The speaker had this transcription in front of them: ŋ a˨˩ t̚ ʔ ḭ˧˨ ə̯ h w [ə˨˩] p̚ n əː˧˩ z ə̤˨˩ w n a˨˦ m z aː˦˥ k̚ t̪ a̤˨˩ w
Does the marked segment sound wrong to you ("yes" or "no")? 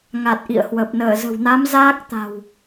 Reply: no